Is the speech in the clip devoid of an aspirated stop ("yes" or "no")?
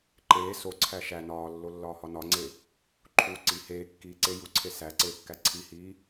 no